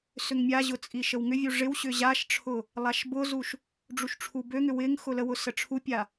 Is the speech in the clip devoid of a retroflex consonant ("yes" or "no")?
no